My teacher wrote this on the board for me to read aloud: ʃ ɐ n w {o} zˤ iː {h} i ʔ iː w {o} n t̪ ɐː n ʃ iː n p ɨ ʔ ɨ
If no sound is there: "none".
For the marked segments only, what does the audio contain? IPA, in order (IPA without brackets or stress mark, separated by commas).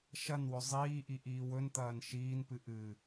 ɵ, ʔ, ɵ